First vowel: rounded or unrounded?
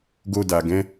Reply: rounded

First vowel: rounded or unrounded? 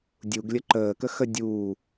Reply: rounded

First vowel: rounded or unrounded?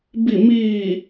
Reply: unrounded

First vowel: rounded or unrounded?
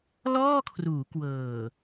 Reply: rounded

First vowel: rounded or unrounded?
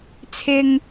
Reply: unrounded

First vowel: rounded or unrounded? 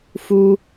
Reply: rounded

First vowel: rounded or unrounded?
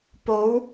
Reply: rounded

